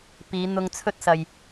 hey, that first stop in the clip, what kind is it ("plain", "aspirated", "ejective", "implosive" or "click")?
plain